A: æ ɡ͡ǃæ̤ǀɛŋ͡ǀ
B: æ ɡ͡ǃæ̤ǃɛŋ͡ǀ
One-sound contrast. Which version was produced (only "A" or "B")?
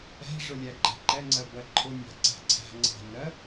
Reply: B